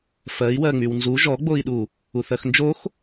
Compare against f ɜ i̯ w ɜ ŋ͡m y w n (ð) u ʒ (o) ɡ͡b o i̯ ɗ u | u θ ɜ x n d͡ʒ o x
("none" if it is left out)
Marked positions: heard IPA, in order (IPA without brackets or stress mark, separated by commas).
z, ɔ